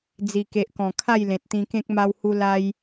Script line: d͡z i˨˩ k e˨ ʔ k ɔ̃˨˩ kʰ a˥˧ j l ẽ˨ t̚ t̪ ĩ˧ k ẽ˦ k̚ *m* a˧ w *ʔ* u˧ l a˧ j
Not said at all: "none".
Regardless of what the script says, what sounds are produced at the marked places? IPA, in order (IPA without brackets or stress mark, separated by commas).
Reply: m, h